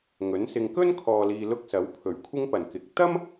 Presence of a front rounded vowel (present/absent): absent